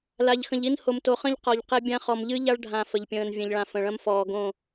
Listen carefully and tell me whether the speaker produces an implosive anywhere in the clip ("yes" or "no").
no